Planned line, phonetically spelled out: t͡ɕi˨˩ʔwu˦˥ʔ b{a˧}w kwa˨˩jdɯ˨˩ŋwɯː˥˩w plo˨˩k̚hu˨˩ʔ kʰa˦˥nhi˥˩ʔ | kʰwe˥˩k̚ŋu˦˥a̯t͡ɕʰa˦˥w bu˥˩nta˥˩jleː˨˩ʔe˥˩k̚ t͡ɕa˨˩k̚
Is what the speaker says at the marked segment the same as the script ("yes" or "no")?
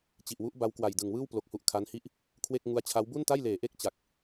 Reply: no